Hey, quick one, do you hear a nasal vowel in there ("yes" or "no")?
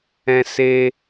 yes